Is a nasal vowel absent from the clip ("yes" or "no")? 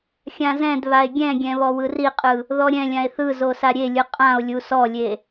no